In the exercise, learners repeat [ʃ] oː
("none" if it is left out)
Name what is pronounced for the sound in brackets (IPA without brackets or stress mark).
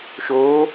ʃ